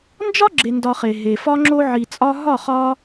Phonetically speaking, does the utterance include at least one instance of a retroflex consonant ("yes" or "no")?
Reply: no